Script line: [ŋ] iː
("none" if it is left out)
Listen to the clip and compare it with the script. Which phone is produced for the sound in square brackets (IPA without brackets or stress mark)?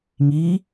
ŋ